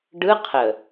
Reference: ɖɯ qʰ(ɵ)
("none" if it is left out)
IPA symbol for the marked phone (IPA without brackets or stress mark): ə